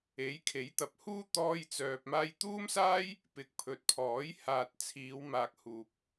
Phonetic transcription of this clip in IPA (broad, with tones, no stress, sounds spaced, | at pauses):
e˨˥ j kʰ e˨˥ j t̪ ɐ˨ p̚ h uː˥ t̪ ɔː˥ j t͡s œː˧ p̚ m aː˧ j t̪ uː˥ m s aː˥ j | p ɪ˨ k̚ pʰ ɵ˨ t̚ pʰ ɔː˨˥ j h aː˨ t̚ t͡sʰ iː˨˧ w m aː˨ k̚ h uː˨ p̚